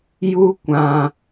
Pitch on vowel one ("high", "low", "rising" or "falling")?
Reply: high